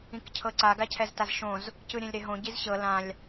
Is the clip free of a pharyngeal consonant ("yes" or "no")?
yes